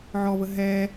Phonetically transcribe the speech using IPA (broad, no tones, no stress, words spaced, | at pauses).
ʕɔvə ɦɛ